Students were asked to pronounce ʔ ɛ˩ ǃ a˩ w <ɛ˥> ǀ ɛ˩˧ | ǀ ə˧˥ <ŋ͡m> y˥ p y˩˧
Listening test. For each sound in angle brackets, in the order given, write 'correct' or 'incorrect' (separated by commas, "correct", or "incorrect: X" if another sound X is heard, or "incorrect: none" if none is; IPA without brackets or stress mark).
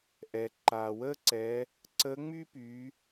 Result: incorrect: ə˥, correct